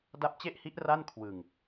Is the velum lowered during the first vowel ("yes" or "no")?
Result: no